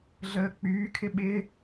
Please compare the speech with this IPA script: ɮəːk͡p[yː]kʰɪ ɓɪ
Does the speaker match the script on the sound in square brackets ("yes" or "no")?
yes